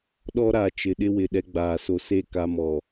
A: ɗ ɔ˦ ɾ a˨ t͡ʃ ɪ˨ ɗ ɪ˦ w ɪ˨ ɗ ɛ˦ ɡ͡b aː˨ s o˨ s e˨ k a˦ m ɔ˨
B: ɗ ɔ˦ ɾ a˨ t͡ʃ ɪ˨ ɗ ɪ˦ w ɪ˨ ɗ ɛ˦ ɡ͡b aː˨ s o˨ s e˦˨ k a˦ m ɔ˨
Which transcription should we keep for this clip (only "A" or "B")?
B